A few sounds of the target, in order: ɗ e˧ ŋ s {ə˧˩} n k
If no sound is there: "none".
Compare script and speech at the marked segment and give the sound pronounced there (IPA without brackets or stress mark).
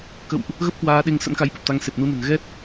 ə̰˧˥